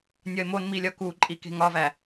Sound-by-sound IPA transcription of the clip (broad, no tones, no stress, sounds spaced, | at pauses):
nʲ ɒ ɪ̯ m o n m i lʲ ɒ k u ǃʼ i k e̤ ŋ ɒ v æ